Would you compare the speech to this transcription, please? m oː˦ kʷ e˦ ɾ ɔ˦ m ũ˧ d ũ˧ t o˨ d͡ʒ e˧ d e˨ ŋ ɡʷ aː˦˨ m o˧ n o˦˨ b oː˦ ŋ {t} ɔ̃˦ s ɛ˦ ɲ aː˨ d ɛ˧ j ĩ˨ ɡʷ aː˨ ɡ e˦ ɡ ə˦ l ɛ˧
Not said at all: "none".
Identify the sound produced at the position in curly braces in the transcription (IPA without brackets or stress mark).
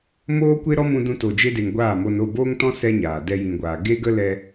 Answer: t